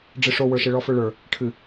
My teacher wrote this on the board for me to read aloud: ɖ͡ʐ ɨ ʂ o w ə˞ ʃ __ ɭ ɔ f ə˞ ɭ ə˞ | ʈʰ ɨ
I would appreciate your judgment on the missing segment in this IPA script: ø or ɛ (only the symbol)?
ɛ